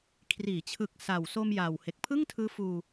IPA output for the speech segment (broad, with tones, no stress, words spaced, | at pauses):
kʰriː˩˦t͡ɕʰɯ˨˩k̚ sa˨˩wso˧m jaː˨˩whe˨˩k̚ pʰɯ˥˩ŋtʰɯː˦˥fuː˧